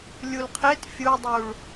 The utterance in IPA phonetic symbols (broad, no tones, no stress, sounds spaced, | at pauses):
lʲ u l qʰ e t fʲ u dˤ u ɭ